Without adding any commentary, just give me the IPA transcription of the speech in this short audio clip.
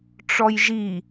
ʈ͡ʂ ɔ j ʒ i

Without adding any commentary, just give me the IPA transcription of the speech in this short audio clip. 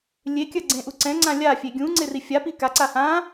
lʲ e kʲ ɐ ɡ͡ǀ ẽ ʔ u ǀ ɛ̃ ŋ͡ǀ ã lʲ a fʲ e ɡʲ ũ ŋ͡ǀ e r i fʲ a p i k a ǀ a h ã

